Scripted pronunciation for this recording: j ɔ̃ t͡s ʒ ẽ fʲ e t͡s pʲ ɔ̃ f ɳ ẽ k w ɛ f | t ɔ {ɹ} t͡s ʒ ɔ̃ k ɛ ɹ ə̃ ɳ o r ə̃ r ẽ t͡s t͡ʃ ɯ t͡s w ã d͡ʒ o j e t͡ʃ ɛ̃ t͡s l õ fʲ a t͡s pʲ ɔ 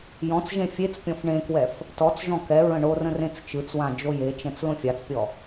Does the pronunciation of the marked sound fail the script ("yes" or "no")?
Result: yes